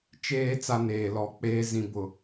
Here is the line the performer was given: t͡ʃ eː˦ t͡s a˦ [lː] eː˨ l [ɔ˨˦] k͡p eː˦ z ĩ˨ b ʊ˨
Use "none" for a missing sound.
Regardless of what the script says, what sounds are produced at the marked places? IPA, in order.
n, ɔ˨˦

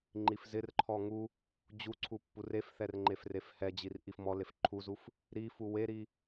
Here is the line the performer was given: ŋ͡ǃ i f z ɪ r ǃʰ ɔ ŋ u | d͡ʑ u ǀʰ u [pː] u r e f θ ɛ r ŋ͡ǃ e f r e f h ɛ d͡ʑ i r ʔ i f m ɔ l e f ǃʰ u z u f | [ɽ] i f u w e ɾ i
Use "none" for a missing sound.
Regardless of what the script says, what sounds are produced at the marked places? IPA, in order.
pː, ɾ

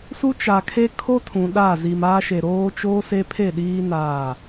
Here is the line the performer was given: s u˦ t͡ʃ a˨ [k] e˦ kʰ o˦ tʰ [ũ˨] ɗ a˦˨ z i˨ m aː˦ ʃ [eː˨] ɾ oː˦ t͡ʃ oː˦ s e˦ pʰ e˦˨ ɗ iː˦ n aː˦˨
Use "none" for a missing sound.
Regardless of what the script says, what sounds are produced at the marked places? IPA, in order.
kʰ, ũ˨, e˨

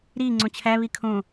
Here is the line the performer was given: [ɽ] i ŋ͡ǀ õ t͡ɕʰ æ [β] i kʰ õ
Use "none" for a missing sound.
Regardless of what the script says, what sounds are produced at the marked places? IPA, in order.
ɾ, β

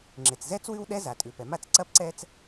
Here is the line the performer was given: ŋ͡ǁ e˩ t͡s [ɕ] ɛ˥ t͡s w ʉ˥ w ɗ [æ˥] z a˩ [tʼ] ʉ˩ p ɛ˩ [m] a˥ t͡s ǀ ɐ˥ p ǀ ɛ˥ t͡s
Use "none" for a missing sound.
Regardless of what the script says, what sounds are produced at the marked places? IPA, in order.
z, ɛ˥, tʼ, m

